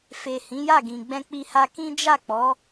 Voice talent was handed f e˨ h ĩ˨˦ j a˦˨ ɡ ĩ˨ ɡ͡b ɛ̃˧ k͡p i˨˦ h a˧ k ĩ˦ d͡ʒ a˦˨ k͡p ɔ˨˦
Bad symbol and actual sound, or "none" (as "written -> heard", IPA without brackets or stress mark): i˨˦ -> i˧